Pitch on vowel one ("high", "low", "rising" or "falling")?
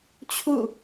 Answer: falling